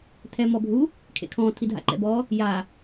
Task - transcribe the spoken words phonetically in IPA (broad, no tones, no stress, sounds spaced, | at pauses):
tʰ ɛ m ɔ bʱ u | kʰ ḛ kʰ ɔ̃ tʰ i dʱ a̰ ǃ ɛ̰ b ɔ | j a